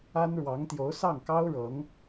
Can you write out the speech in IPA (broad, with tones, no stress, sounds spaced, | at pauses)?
a˥ n ɻ w ɑ˧˥ ŋ t̪ j o˧˥ ʊ̯ s ɑ˥˩ ŋ k ɑ˥ ʊ̯ ɻ ɤ˧˥ ŋ